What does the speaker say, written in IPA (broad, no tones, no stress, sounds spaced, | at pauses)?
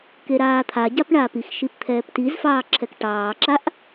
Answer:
k e ɾ aː t̪ʰ a ɟ a p ɳ aː p i x ʃ i p t̪ʰ ɛː p t i z f ɑː ǁʰ ɛ k ʈ ɑː ǁ a ʔ